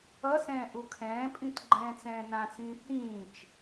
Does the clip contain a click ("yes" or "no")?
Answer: yes